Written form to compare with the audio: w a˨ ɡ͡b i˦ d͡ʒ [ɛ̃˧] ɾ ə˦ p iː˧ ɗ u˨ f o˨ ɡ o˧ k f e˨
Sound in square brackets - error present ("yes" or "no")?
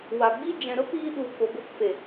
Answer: yes